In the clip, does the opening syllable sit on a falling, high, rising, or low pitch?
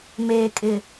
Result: low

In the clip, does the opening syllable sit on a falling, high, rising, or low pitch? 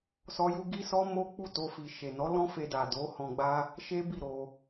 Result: high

